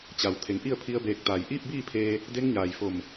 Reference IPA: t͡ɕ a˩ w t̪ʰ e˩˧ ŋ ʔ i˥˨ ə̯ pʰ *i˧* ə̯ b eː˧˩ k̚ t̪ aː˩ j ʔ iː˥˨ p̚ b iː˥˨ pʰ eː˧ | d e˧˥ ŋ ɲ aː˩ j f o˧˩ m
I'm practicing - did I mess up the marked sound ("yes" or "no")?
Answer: no